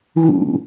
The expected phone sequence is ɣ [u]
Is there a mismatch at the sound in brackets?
yes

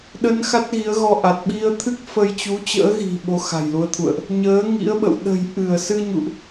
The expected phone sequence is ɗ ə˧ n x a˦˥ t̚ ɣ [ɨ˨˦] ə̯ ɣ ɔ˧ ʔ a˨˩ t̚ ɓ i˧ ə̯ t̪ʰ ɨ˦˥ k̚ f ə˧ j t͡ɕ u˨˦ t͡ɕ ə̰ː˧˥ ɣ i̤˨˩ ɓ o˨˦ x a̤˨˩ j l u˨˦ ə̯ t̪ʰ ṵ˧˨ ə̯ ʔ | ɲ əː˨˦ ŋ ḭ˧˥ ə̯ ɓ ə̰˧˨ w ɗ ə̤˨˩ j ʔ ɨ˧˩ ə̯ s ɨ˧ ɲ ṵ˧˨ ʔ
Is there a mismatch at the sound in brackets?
yes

